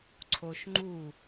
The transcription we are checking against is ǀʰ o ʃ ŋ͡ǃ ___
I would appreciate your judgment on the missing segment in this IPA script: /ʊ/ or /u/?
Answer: u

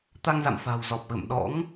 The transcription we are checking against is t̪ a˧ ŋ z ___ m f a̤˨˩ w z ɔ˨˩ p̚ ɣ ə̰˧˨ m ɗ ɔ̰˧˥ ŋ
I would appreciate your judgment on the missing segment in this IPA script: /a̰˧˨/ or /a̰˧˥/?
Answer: a̰˧˨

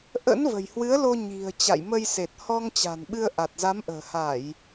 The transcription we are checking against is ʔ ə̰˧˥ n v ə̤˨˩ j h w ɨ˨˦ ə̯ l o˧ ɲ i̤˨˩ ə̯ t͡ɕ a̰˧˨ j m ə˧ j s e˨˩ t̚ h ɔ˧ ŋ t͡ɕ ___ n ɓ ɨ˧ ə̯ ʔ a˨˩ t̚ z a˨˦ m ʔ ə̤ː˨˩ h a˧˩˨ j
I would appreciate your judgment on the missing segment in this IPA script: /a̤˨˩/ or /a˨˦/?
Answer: a̤˨˩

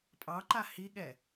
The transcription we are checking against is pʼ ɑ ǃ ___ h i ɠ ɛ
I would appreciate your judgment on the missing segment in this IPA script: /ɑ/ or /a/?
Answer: a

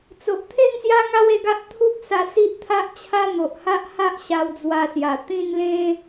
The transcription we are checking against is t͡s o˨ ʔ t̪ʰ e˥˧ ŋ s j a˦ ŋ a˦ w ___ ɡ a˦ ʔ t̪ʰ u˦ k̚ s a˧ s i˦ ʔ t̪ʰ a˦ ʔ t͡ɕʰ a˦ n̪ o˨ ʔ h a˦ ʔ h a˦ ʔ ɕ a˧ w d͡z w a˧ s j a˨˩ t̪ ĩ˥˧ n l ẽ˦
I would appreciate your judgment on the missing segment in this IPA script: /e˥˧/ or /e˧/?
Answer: e˧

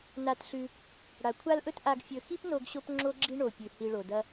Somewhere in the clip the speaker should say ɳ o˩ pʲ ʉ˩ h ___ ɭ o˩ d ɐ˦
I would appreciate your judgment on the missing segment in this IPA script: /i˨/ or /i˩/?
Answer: i˨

